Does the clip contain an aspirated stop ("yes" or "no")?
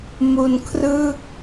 yes